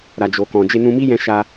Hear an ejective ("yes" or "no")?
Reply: no